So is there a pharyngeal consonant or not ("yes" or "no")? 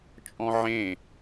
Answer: yes